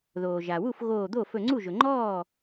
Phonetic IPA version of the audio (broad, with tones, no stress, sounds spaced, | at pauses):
ð oː˩ ʒ a˩ w u˥˩ f ɣ oː˧˩ d̪ o˥˩ f ɵ˧˩ ŋ͡ǀ u˥˩ ʒ ɵ˩ ŋ͡ǃ ɔː˥˩